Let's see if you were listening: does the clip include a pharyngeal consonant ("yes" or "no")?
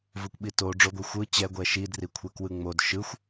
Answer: no